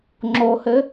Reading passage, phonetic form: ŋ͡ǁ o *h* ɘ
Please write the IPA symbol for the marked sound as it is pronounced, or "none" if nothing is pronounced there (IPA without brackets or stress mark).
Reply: h